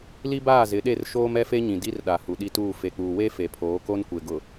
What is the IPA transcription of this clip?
l i˦ b aː˦˨ z ɪ˨˦ ɗ e˦˨ r ʃ oː˦ m ɛ˦ f e˦ ɲ ĩ˨ d i˦ r ɗ a˨ h u˨ ɗ i˦ t uː˦˨ f e˨ k͡p uː˨ w e˦ f e˨ pʰ oː˨˦ k o˦ n kʷ e˨ ɡ ʊ˨

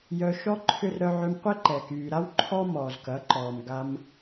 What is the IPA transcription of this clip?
j œ˧ ʃ ɔ˦ ǃʰ ʏ˦ r ɾ œ˧ ʕ ʏ˧ m qʷ ɛ˦ ǃ ɛ˨ k yː˨ ɾ a˦ w ǃʰ ɔ˦ m ɔː˨ z k ɐ˨˦ ǃ ɔː˨ m ɡ a˧ m

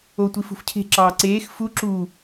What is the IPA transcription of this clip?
o tʷ i f ṳ f cʰ e̤ ǁ ɑː ǀ eː x f u ǁ u

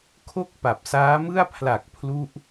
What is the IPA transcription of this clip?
kʰ o˥˩ k̚ p a˨˩ p̚ s aː˦˥ m ɯ˥˩ a̯ pʰ l a˨˩ k̚ pʰ l u˦˥ ʔ

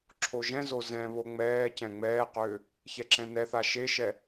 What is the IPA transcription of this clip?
ǁʰ o ʒ ɛ̃ z o z ɛ̃ β o ŋ͡m ɛː c ɛ̃ ŋ͡m ɛː q ʏː | ç ɛ ǁ ɛ̃ n ɛ θ a ʃ e ʃ ɛ

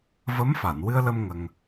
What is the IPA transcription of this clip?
v ə˧˥ m f a˨˩˨ n w ɨ˧ ə̯ l ə˧ m ŋ ə˧ ŋ

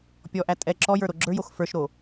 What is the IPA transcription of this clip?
pʲ ɔ ʔ æ tʼ ɛ ǁ ɔ j ə˞ ɾ o ɡ͡ǁ ə˞ j o x f ə˞ ʃ ɾ o

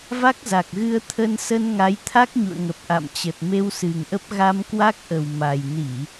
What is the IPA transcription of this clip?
v a˦˥ k̚ z a˨˩ k̚ ɣ ɨ˧ ə̯ t̪ʰ ə˧ n s ə˧ n ŋ a˨˦ j t̪ʰ a˦˥ k̚ ɲ ṵ˧˨ ə̯ ŋ ə˨˩ p̚ ʔ a̰˧˨ m t͡ɕ ə˨˩ t̚ m e˧ w s ɨ˨˩ ŋ ʔ ə˦˥ p̚ ɣ a˧ m k w a˦˥ k̚ ʔ ə˨˩ w m a˨˩ j n i˧˩˨

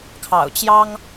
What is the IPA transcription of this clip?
kʰ ɑ̰˨˩ ʊ̯ t͡ɕ j ɑ˥ ŋ

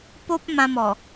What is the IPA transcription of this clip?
p o˦ p̚ m ã˧ m ɔ˨˩

